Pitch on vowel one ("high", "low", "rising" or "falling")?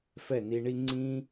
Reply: falling